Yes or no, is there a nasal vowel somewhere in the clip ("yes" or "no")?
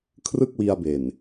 no